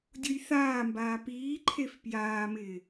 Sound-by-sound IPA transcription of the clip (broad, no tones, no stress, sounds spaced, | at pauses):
dʲ u j θ aː m b aː p iː ǃʰ e f p j aː m ɪː